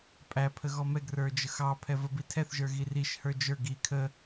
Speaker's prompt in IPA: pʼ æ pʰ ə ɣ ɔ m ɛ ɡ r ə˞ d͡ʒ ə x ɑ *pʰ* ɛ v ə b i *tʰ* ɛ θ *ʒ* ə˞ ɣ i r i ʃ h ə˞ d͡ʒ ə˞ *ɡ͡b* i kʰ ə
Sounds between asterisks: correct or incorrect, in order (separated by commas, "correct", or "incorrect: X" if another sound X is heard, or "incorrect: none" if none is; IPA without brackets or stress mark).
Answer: correct, correct, correct, incorrect: ɡ